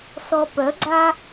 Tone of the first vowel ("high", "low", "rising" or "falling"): low